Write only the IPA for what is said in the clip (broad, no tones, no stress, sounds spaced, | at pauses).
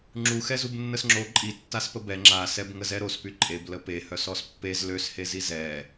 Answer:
ŋ͡ǁ u x ɛ z u b nː ə s ŋ͡ǁ o ǃʼ i tː a s p ə b ɛ ŋ͡ǁ a s ɛ b ŋ ə z ɛ ɾ o s p y ǃʼ e b l ə p e h œ s ɔ s pː e z l ø s h e z i z ɛ